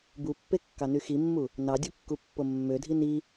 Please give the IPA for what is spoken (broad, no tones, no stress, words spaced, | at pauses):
bupːekːɑny ximːu | nɑdʲukːupːo mːødʱi ni